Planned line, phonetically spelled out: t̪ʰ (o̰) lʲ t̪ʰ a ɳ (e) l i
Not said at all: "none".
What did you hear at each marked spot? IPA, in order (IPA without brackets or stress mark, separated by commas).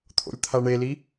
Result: o̰, e